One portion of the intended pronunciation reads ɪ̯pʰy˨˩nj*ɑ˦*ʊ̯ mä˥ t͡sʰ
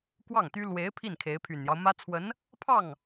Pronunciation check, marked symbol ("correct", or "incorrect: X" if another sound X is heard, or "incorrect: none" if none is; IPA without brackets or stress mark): correct